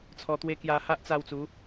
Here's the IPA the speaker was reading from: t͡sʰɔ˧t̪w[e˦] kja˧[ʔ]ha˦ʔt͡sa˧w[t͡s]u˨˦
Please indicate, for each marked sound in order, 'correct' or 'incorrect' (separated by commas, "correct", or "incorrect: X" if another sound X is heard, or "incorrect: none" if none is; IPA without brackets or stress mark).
correct, incorrect: none, correct